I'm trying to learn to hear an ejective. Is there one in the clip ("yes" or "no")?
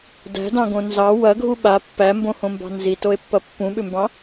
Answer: no